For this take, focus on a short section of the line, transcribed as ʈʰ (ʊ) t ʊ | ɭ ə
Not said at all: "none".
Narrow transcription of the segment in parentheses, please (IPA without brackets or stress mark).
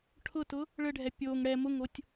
ʊ